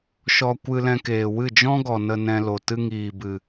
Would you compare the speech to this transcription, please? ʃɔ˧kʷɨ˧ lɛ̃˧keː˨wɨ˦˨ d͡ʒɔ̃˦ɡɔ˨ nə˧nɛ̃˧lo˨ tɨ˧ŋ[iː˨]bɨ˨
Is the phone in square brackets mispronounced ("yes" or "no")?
no